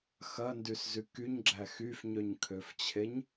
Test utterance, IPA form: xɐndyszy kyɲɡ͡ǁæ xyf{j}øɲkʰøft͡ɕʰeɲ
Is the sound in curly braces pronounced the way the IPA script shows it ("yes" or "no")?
no